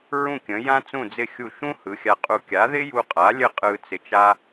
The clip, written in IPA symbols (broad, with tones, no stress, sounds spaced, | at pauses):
ɹ ũ˥˩ kʲ ə̃˩˥ j ã˥ t͡s ũ˥˩ d͡z ɪ˥˩ xʲ u˥˩ ʃ ũ˥ h ɯ˩˥ xʲ a˧ qʼ u˧ kʲ a˩˥ ð ɪ˥ j u˧ qʼ a˩˥ lʲ ə˥˩ qʼ ɯ˧ t͡s ɪ˧ t͡ʃ a˥